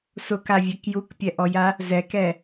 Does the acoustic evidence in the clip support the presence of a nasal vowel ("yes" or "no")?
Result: no